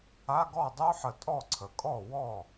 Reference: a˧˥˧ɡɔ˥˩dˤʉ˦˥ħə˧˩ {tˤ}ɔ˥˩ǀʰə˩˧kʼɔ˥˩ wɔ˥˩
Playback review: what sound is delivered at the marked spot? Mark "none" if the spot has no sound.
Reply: tʼ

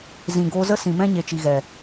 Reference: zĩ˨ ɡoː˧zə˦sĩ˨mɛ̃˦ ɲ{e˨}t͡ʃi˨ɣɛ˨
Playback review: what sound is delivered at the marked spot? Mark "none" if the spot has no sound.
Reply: e˨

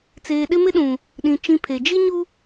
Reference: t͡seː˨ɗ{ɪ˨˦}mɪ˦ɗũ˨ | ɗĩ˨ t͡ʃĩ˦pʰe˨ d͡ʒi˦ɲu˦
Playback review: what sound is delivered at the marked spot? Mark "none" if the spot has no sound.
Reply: ɪ˦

